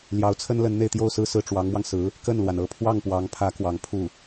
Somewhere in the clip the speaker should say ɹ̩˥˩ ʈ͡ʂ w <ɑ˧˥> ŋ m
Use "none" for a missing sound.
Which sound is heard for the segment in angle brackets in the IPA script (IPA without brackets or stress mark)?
ɑ˧˥